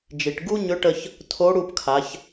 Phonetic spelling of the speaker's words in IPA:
d͡ʒ i˩ ʈ ɡ u˥ ɲ ʏ˧˥ ʈ ə˧ ç | tʰ o˧˥ ɽ u˧ p kʰ a˩˧ ç

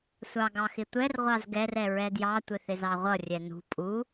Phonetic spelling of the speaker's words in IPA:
sʷ ɑ ɡ ɑ x ɪ tʷ ɛ r ʁʷ ɑ z ɡ ɛ r ɛ ɹ ɛ d j ɑ tʷ ɪ θ ɪ z ɑ ʁʷ ʌ rʲ ɛ n ṳ pʼ u

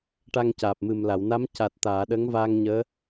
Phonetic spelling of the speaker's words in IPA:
ʈ a˧ ŋ c aː˨˩ p̚ m ɨ˨˩ m l a˨˩˨ w n a˧˥ m c a˨˩ t̚ t̪ aː˨˩˨ ɗ əː˧˥ ŋ v aː˧ ŋ ɲ əː˧˥

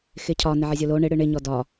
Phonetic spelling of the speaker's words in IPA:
x ɪ cʰ ɒ n ɪ ʕ ɪ zʲ o l o ɳ ɪ ɽ ɨ ɳ ɪ ɲ ɔ d ɒ

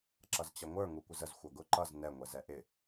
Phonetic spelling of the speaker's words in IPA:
ǁ ʌ z t͡ɕ ʌ ŋʷ ə˞ ŋ u kʷ ɪ z ə z xʷ ʌ ɡ ʊ ǃ ʌ z n ɛ ŋʷ ɛ z ɛ ʔ ɪ

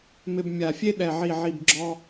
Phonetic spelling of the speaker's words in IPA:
m ɪ˧ b mʲ a˨˩ fʲ e˥ ɗ ɛ˨˩ ʕ i˨˩ ʕ i˨˩ b ɡ͡ǁ ɔ˧

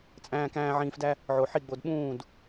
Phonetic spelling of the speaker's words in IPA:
t͡sʼ æ̃ː˧ k æ̃ː˧ ʕ ĩː˧ f d æ˦ | ʕ o˨ ħ i˦˨ ɡ͡b o˧ d ɓ ũː˦˨ d

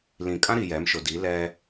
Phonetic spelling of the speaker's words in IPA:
l ĩ˨ kʼ ã˦ ɾ i˨ j ɛ˨˦ m ʃ ʊ˨ d i˨˦ l ɛ˦

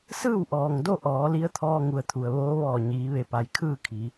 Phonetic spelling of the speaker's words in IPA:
s ɯː˥˨ w ʔ ɔː˩ ŋ d o˥˨ ʔ ɔː˩˧ l i˧˥ ə̯ t̪ʰ ɔː˧ ŋ u˩˧ ə̯ t̪ʰ u˩ ə̯ ʋ oː˧˥ ʋ ɔː˧˩ ɲ iː˩˧ ʋ e˧˩ p a˩ j kʰ ɯː˥˨ kʰ i˩˧

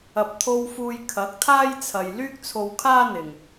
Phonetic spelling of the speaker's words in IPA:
ɐ˨ p̚ t̪ʰ o˧ w f uː˧ j kʰ ɐ˨˥ k̚ t̪ʰ aː˥ j t͡sʰ ɐ˨ j l yː˥ k̚ t͡sʰ o˧ w kʰ aː˥ n̪ ɪ˨ ŋ

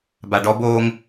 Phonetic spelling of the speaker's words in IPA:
b a ɖ ɔ b oː ŋ

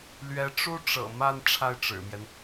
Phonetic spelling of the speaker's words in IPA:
l ɥ ɛ˧˥ ʈ͡ʂ u˥ ʈ͡ʂ ɤ̰˨˩ m a˥˧ n ʈ͡ʂʰ a˥˩ ɪ̯ ʈ͡ʂ ɻ̩˨˩ m j ɛ˦ n

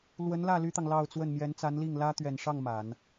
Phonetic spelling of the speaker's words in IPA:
l w ə˧˥ n l ä˥˩ l y˥ t̪ ɑ˨ ŋ l ɑ˥˧ ʊ̯ t͡s w ə˥˩ n m j ɛ˧˥ n t͡s a˧˥ n l i˥˩ ŋ l ä˥ t̪ ɥ ɛ˨˩ n ʂ ɑ˥˩ ŋ m a˨˩˦ n

